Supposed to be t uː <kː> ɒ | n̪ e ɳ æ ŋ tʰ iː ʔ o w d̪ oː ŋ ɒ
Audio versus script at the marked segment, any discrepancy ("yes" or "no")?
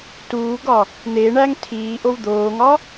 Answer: yes